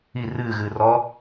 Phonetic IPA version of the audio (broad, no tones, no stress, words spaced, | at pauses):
i rɨːɣɨː rɔ